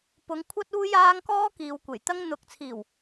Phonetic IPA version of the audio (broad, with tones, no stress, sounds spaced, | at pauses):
p ʊ˨˥ ŋ kʷʰ ɐ˥ t̚ uː˥ j aː˥ ŋ k ɔː˥ k iː˨ w kʷ e˨˩ j t̪ ɐ˥ ŋ n̪ ʊ˧ k̚ t͡sʰ iː˨˩ w